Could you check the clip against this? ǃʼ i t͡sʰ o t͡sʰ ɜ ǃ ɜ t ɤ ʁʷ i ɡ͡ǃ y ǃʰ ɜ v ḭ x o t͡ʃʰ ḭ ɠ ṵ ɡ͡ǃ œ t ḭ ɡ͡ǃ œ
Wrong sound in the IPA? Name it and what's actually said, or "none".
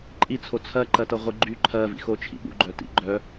none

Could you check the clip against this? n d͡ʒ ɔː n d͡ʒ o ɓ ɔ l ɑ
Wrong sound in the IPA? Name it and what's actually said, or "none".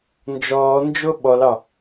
none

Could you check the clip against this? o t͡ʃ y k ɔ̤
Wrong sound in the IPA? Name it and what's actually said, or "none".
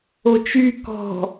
none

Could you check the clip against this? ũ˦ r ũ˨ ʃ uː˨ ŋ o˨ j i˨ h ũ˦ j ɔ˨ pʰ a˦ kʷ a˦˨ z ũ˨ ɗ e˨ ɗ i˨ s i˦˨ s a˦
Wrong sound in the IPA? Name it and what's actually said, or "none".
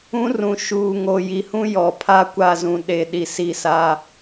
none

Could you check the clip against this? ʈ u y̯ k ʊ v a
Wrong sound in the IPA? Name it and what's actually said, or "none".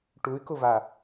none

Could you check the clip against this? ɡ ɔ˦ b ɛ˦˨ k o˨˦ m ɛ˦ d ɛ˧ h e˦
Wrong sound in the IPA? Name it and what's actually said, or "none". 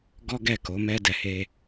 b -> ɡ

